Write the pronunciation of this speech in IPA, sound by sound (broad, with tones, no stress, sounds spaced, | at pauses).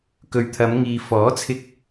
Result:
k ɵ˨ ɥ t̪ʰ ɐ˨˧ m ŋ iː˨ f ɔː˨˥ t͡sʰ ɪ˧ k̚